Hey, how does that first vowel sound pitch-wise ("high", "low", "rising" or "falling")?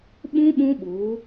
high